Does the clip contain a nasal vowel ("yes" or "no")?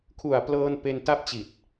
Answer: no